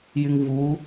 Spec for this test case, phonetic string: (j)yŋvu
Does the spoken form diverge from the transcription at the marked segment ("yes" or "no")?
no